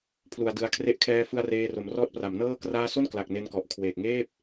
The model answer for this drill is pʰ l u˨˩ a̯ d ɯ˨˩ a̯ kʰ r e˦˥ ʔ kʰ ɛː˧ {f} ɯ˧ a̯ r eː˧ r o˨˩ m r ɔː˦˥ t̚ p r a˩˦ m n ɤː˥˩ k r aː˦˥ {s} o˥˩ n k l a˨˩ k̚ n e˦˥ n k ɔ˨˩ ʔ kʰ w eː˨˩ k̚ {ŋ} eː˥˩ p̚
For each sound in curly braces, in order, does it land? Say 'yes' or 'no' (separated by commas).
yes, yes, yes